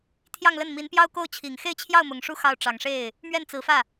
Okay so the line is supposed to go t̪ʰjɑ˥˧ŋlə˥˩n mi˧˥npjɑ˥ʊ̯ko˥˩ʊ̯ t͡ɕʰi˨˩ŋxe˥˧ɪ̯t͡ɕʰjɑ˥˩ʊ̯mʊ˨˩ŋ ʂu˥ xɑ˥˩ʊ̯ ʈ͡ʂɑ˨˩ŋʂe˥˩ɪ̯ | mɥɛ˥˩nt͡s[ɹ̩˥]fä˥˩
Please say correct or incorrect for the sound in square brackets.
incorrect